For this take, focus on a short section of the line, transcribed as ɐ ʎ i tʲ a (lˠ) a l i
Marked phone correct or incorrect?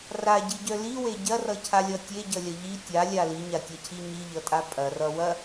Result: incorrect